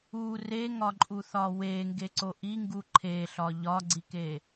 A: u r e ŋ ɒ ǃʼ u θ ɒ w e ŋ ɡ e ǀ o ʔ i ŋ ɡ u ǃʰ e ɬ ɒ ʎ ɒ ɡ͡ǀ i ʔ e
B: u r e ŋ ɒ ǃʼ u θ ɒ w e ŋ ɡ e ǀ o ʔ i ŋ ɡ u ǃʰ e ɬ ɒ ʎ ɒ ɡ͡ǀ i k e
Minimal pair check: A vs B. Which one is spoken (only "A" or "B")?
B